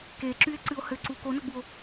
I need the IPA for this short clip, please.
k e ǁ y e̯ ǀ ɨ o̯ h ɘ ǀ u k o n ʌ ɡ͡b u o̯

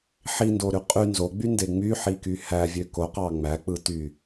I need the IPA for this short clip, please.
ħ i n d o ɾ y qʼ y n z o ɡ͡b y n d e ŋ͡m y ħ i k y h æ vʲ ø k o q ɑ ŋ͡m æ k͡p ɯ t y

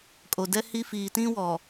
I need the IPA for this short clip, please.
kʼ o˨ d ɛ˦ h i˦ f iː˨ t ĩ˦ w ɔ˨

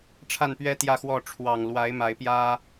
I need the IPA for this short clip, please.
ʈ͡ʂʰ a˥˨ n p ɥ ɛ˦ t̪ j ä˥˨ x w ɔ˥˨ ʈ͡ʂʰ w ɑ˨˩ ŋ l w a˨˦ ɪ̯ m a˨˦ ɪ̯ p j ä˦

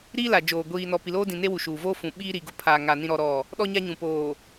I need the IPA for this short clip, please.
ɾ iː˦ l a˨ d͡ʒ oː˨ ɡʷ iː˨ n ɔ˨ p i˨ l oː˦ d ĩ˨ n e˦ w u˨ ʃ uː˨ v oː˦ f ũ˨ ɓ iː˦ ɾ i˨ ɡ ʊ˦ pʰ aː˨ ŋ a˨ n ĩ˦ ɾ ɔ˦ ɾ ɔ˦˨ | ɗ ɔ˦ ɲ a˦ ɲ ũ˨ p oː˨

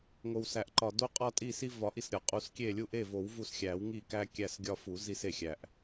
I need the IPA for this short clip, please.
ŋ o˩ w s æ˩ ʔ ǃ ɒ˩ d o˦ qʼ ɒ˦ tʼ i˦˨ s i˦ v ɒ˨˩˦ ʔ i˩ s ɾʲ ɒ˩ qʼ u˨˩˦ s kʲ e˦˨ lʲ u˦ ʔ e˦˨ v o˨˩˦ w v u˦˨ s xʲ æ˨˩˦ w ŋ i˦˨ k æ˦ kʲ æ˦˨ s ɡʲ ɒ˦ f u˨˩˦ z i˦ s e˩ xʲ æ˩ ʔ

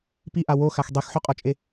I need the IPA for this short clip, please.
p i ʔ a w o x a x dˤ e x ħ o qʼ ɔ t͡ʃʼ e

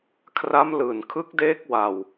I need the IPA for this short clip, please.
kʰ r a˦˥ m l ɯː˨˩ n kʰ ɯ˦˥ k̚ d eː˦˥ k̚ w a˧ w

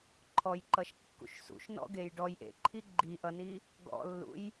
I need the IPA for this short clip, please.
ǃʰ ɔ j ǃ ʌ ʃ kː ṵ ʃ s ṵ ʃ n ɔ̰ ɡ e j ɖ ɔ j ʔ ḛ ǃʰ i ɡ͡ǃ i ʔ ʌ n i | ɡ ɔ̰ lː ṵ j

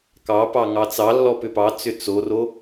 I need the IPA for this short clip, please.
k ɑ p ɑ ŋ ɑ t͡s ɑ lː ɔ p ʏ p ɑ t͡s ʏ t͡s o r o

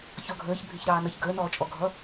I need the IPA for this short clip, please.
ç ɔ ɡʱ əː ç bʱ ɪ ç ɾ ɑː n ʌ ç ɡ əː n ɔː t͡ʃʼ ɔ ɡʱ ʌ

